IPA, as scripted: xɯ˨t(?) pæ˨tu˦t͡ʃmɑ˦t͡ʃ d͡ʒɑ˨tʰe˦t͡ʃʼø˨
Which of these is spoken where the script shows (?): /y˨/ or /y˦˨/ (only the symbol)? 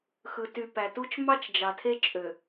y˨